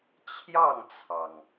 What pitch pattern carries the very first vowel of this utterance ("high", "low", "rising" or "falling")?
falling